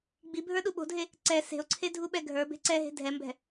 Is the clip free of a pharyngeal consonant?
yes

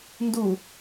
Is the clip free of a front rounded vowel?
yes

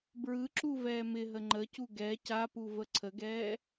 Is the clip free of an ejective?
yes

